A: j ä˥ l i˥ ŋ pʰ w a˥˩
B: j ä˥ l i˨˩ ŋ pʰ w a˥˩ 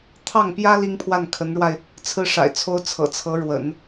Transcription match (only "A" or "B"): A